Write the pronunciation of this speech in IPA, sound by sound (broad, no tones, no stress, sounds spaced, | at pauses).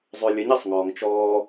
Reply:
zˤ ʉ lʲ ə ɲ e sˤ ŋ ɔː ŋ t͡ʃ ɔː